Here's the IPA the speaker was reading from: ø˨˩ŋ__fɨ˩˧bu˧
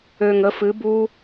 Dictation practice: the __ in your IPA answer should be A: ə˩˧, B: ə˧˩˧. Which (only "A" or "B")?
A